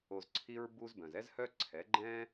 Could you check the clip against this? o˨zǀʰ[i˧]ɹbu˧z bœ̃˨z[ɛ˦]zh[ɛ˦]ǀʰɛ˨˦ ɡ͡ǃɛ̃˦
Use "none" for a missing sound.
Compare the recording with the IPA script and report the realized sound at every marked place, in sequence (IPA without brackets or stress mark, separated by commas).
i˧, ɛ˦, œ˦